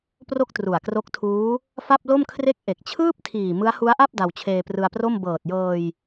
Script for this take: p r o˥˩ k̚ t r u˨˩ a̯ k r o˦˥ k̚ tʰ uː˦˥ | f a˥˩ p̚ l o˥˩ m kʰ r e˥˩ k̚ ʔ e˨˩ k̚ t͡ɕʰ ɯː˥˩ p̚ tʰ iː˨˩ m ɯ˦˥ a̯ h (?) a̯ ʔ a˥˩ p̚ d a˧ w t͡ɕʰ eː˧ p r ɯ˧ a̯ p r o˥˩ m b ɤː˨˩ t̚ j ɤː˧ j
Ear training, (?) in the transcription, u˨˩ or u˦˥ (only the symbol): u˦˥